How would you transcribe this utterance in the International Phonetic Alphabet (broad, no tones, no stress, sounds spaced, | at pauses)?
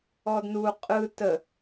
ɔ d n u qʼ ɯ t ə